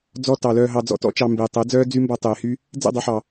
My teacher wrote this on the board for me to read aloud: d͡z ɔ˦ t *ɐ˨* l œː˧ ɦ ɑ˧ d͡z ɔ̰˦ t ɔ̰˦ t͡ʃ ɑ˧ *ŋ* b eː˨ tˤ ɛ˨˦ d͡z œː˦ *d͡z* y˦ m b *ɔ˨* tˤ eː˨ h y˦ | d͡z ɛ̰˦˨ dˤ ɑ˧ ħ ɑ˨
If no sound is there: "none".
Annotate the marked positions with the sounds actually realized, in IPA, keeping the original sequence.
ɑ˨, m, d͡z, ɔ˧

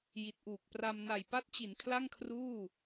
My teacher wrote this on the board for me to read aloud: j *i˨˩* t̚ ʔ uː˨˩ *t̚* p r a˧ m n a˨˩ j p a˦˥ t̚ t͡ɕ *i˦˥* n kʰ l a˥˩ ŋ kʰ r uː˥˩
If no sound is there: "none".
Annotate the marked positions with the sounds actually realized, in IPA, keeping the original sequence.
i˨˩, k̚, i˩˦

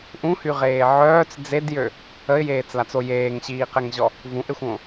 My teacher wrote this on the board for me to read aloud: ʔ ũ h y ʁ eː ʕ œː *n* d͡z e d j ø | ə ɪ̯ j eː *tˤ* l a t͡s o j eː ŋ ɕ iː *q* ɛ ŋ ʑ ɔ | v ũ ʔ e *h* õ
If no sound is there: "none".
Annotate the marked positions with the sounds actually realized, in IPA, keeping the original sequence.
t͡s, t͡s, q, xʷ

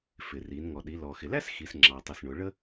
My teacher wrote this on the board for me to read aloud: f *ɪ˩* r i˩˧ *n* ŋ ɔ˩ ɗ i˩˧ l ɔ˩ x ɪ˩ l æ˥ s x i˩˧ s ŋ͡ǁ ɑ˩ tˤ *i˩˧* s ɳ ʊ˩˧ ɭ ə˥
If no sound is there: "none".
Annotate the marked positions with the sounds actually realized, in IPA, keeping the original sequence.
ɪ˩, n, i˩

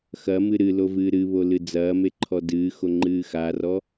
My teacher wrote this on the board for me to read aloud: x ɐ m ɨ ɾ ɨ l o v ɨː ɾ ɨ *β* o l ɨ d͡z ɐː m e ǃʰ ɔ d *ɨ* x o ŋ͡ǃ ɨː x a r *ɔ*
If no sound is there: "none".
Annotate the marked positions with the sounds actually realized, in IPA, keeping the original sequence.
β, ɨː, ɔ

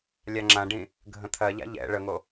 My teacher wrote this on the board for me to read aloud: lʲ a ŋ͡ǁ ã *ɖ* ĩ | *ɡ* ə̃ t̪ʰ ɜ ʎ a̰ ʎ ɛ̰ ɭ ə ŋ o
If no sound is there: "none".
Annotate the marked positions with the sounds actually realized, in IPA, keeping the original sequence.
ɖ, ɡʱ

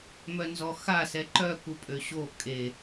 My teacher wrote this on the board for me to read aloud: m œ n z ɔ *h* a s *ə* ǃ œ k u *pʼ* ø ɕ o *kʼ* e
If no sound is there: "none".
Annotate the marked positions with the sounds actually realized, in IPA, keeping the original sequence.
x, ɛ, pʼ, kʼ

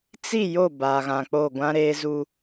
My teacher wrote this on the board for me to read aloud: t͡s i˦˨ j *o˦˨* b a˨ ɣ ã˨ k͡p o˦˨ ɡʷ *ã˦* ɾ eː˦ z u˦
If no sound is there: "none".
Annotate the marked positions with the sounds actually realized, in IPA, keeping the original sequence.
o˦˨, ã˦

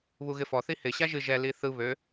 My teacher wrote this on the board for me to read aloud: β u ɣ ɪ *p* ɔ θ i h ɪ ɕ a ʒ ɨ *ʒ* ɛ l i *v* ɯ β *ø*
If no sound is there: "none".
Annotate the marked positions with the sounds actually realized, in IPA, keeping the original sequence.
f, ʒ, θ, ø

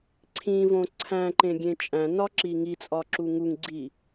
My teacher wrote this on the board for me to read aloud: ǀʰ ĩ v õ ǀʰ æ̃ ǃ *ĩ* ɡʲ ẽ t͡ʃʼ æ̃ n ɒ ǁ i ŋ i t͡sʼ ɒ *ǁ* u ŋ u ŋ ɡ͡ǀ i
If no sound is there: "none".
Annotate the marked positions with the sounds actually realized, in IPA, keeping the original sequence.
ẽ, ǁ

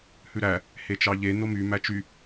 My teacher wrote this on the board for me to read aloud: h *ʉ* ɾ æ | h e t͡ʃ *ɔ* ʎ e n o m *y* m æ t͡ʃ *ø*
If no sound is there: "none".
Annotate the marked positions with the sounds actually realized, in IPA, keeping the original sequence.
ʉ, ɑ, y, y

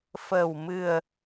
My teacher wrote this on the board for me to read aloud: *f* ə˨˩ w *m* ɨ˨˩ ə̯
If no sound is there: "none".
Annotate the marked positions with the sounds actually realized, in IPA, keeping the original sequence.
f, m

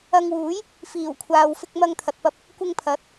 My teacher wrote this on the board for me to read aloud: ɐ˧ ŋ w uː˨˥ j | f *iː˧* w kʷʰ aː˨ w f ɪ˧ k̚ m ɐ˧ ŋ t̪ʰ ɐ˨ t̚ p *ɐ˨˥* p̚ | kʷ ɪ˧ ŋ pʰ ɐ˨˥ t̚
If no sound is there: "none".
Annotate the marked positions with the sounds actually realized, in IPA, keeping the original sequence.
iː˨˩, ɐ˧

